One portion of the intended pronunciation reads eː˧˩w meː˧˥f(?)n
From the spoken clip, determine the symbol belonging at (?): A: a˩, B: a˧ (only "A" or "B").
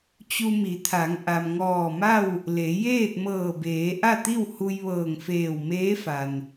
A